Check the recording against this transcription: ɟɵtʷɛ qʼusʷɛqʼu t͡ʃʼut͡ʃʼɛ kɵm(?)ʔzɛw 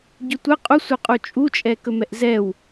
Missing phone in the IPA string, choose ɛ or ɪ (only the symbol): ɛ